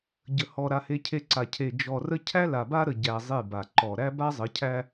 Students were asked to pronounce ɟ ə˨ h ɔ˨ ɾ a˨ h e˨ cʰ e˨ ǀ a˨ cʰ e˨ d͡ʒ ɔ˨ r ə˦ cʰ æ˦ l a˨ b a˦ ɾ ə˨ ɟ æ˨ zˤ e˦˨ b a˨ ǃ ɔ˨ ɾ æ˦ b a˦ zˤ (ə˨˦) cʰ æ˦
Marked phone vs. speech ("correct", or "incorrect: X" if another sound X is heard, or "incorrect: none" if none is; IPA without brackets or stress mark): correct